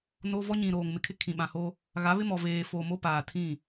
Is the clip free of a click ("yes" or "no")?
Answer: yes